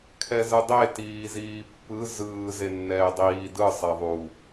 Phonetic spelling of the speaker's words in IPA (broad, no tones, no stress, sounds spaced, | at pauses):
kʰ ɛ z ɯ dˤ e t iː z iː pː ɯ z ɯː z e nː ɛː dˤ iː d ɯ sˤ e ðˤ u